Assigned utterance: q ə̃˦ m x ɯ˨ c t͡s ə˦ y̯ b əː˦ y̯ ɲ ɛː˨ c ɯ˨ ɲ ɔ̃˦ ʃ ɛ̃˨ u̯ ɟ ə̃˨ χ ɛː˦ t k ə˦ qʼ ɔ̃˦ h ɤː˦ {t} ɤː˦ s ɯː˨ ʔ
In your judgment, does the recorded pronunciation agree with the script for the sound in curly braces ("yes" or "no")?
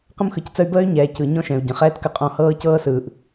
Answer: no